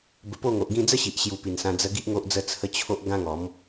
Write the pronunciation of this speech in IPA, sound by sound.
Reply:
b ə˧ p o˥˧ ŋ o˨ ʔ ɡ ĩ˥˧ d͡z ə˦ ɕ i˨ ʔ ɕ j u˨˩ p i˨˩ n s ã˧ d͡z ə˧ ɡ i˦ ʔ ŋ o˦ ʔ d͡z ə˦ t͡sʰ ə˦ t͡ɕʰ o˦ ʔ ɡ ã˦ ŋ ɔ˨˦ m

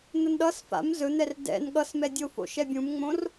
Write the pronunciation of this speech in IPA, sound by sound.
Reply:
n̪ ə n ɗ ʌ s f a̰ m z ɵ n̪ ɛ r d ɛ̰ n ɠ ʌ s m ɛ dʲ o f o̰ ʃ ɛ bʲ ũ m ŋ͡m õ r

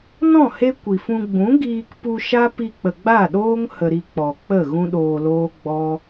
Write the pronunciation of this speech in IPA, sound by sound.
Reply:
n ɔ̃˦˨ h e˦ kʷ i˨ f ũ˧ ɡ͡b ũ˨˦ ɡ iː˧ k p u˧ ʃ a˦ p i˧ k͡p ə˨ ɡ͡b a˦˨ ɗ oː˦ ŋ h ə˧ ɾ i˧ k͡p ɔ˨ k͡p ə˦˨ ɣ ũ˦ ɗ oː˧ l oː˦ ɡ͡b ɔ˦

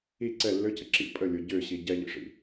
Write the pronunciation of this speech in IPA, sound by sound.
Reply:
i ǀ ɛ lː ø c ə ǁ ḭ pʼ ə lʲ o ɟ ø ɕ i ɟ ɛ ʎ ḭ ʂ ḭ

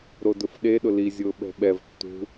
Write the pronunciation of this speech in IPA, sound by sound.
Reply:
ɾ o d ʊ f ɗ e ɗ ʊ l i zʲ ʊː ɓ ɛ̤ ɓ ɛ v tː ṳ

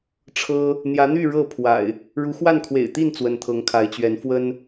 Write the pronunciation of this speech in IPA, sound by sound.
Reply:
ʈ͡ʂʰ ɤ˦ | n̪ j ä˨˦ n̪ y˥˨ ɻ ɤ˥˨ pʰ w a̰˨˩ ɪ̯ | ɻ u˨˦ x w a˥˨ n kʰ w ḛ˨˩ ɪ̯ t̪ i˥˨ n t͡s w ə˨˦ n t̪ʰ ɤ˨˦ ŋ kʰ a˨˦ ɪ̯ t͡ɕ ɥ ɛ˨˦ n f w ə˦ n

